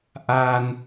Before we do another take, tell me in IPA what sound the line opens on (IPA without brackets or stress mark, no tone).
ʔ